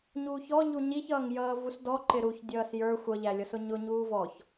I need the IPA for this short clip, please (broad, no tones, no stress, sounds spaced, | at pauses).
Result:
ɲ uː ç ɔ ʎ u ɲ i ç ʌː ŋ j ʌː v u s d ɔ ǃ ɪ ɾ u ç dʲ ʌː s j ə˞ xʷ ʌ ʎ æ lʲ ɔ s ʊ ɲ ʊ ɲ uː v ɔ ç